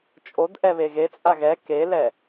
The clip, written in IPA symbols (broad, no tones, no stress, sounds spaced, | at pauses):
t͡ʃʼ o d ʔ ɛ β e ɣ e t͡sʼ a ɣ ɛ k e l ɛ